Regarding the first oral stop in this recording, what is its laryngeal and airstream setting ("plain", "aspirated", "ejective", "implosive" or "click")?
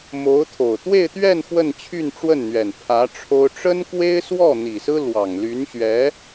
aspirated